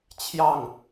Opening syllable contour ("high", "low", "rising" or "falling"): falling